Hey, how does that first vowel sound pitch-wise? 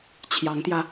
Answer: rising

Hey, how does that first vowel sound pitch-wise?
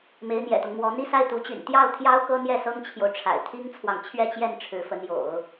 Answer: rising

